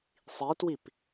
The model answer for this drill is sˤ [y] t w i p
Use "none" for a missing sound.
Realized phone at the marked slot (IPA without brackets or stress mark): i